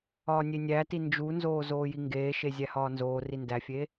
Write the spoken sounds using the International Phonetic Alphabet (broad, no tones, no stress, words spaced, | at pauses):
ɒːnʲenʲæti nd͡ʒunzoː zoːjiŋɡeːʃe zʲæhɒːnzoːri ndæfʲeː